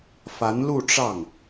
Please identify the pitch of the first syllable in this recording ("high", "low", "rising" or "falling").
rising